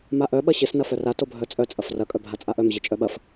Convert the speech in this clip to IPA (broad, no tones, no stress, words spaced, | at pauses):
maʔœ ɓɐɕɪs nɐfœra tobʱœt͡sʼœ t͡sʼɐfrɐ kʼœbʱat͡sʼaʔœm ʑɪt͡ʃʼœɓɐf